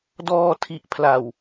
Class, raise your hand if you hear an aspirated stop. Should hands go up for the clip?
yes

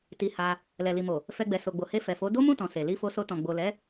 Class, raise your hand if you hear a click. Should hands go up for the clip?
no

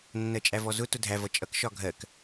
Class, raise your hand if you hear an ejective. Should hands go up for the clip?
yes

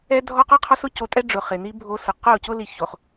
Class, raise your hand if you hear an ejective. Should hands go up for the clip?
yes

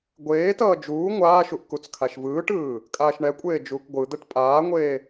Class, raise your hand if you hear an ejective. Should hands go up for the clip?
yes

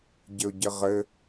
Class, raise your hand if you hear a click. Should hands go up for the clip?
no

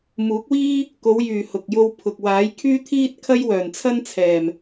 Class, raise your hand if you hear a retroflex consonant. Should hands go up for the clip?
no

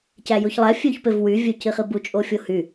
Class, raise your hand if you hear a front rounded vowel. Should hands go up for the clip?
yes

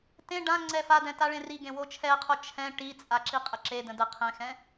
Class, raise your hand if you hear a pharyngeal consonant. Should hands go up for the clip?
no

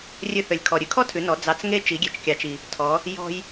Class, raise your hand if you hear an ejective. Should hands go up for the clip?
no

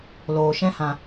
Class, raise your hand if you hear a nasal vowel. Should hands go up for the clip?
yes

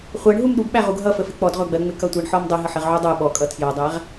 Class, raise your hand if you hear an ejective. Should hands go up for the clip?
yes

